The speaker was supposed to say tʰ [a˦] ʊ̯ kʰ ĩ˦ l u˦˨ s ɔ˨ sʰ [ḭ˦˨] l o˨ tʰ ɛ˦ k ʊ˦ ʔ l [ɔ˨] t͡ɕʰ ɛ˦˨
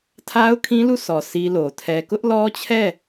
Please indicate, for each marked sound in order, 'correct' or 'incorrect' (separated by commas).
correct, incorrect, incorrect